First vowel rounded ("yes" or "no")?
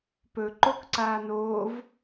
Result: yes